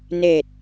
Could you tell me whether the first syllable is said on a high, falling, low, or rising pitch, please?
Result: low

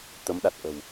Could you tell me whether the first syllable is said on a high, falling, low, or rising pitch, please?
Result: rising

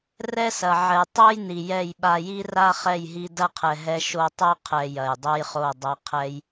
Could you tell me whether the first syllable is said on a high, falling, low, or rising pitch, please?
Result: high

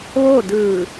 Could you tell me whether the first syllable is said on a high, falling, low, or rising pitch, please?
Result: falling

